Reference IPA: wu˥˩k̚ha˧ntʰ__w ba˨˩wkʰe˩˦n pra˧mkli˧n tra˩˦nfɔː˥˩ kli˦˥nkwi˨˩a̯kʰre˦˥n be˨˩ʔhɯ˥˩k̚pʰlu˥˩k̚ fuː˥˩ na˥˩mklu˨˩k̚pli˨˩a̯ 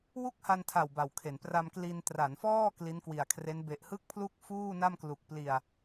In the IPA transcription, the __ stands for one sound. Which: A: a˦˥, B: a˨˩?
B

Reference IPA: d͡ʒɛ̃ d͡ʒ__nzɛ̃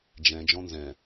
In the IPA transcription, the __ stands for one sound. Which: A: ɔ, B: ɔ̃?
B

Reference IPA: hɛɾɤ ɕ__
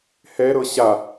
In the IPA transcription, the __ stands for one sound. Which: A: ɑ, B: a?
B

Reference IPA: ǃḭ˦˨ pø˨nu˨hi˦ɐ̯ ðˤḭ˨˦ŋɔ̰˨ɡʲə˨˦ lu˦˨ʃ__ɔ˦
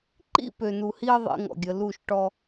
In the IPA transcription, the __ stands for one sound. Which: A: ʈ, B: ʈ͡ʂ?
A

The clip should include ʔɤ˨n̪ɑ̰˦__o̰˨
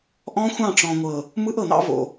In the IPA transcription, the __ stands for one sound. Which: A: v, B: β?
A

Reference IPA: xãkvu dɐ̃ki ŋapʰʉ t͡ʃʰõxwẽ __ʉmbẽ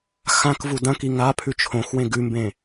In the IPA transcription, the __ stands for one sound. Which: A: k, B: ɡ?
B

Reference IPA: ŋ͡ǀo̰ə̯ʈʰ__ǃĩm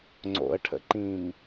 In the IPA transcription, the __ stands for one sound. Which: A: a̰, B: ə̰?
B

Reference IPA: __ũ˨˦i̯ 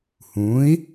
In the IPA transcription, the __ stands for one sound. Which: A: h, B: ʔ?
A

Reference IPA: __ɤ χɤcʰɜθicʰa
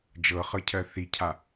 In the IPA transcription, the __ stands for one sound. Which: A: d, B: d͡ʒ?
B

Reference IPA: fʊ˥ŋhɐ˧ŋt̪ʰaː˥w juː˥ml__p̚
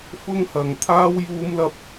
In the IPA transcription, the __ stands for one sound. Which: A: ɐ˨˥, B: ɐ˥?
B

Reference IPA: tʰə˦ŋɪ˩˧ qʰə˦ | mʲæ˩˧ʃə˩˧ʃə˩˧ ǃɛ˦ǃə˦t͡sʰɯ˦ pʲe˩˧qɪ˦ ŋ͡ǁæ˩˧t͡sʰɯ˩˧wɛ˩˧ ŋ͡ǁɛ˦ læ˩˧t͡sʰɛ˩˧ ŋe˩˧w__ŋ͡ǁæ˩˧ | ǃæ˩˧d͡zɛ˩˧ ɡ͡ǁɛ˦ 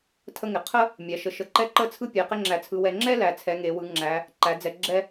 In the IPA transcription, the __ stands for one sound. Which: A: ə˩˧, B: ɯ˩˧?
B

